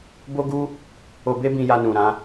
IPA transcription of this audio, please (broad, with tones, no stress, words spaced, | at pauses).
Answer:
bo˦ɡu˦ | o˧be˦bĩ˧ja˧ nũ˨ ɾã˨˦